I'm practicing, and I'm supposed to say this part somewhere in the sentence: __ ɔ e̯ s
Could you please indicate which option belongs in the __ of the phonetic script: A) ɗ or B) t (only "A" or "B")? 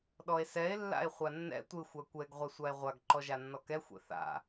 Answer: A